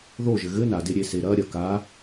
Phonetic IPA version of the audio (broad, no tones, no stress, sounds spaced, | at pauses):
ð o ʒ ɘ ɣ ɘ n a d e ɾʲ e s e ɾ ɐ ɾʲ ɐ k a